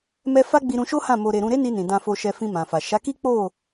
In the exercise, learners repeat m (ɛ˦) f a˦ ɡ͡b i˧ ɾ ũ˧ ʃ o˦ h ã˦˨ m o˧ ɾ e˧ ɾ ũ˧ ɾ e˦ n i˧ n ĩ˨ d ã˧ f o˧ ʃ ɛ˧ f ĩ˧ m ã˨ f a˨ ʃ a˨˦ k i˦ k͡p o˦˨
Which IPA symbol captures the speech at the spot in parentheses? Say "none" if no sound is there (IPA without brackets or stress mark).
ɛ˦